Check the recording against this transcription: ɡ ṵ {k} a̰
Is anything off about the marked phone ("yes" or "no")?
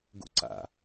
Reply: yes